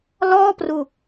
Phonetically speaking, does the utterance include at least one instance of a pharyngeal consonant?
no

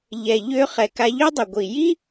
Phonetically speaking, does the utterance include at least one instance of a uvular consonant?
yes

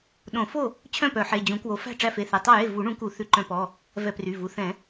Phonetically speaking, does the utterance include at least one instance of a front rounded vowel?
yes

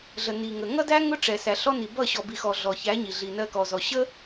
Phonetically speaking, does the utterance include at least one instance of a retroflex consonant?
yes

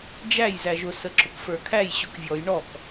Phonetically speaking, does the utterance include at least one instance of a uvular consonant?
no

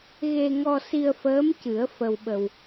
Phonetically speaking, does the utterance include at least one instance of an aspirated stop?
no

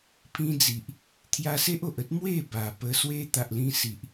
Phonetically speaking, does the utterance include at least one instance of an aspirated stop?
yes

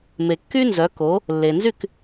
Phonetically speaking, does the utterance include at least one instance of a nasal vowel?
no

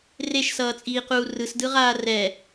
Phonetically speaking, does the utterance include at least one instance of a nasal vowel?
no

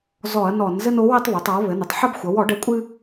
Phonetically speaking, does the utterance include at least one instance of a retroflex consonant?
yes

